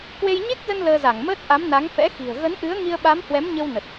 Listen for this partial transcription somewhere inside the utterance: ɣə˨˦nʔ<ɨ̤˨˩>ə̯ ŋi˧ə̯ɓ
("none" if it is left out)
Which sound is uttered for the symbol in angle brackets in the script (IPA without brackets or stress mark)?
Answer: ɨ˨˦